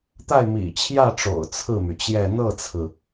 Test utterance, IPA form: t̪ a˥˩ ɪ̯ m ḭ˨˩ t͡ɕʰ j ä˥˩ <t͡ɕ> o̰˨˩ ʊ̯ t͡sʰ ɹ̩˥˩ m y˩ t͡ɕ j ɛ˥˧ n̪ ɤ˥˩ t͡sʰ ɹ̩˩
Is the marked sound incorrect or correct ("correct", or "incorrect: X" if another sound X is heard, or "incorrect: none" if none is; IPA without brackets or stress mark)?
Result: incorrect: ʈ͡ʂ